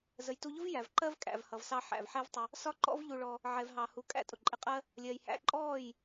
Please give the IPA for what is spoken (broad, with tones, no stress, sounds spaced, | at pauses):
z ə˨ j t u˧ ʎ ʊ˦ v j æ˨ v ǃ ɜ˦ v kʼ æ̰˨ v h ʌ˨ v s ɑ˧ ħ æ̰˨ v ħ ɛ˦ v tˤ ə˧ | s ɒ˦ ǃ ɔ̰˦ v ʎ u˧ ɭ ɔ˧ | ʕ ɛ˨ v ɦ ɑ˨ h u˧ kʼ æ̰˦ tʼ ʊ˨ ǃʼ ɪ˧ qʼ ɜ˦ | lʲ ɜ˧ j h æ̰˦ ǃʼ ɔː˦˨ j